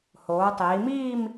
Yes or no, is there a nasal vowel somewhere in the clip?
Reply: no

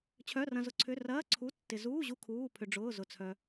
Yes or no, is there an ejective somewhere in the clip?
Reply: no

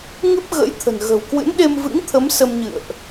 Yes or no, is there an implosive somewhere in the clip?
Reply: yes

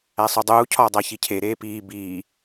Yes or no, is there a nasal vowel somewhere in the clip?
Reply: no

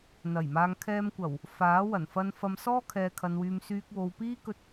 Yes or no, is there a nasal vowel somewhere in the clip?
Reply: no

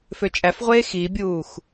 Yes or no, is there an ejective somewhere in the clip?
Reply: yes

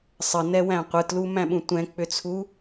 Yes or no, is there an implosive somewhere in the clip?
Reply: yes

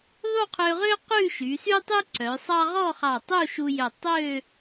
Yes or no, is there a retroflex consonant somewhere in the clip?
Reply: no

